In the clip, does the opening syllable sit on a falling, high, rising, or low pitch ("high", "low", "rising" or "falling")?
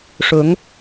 rising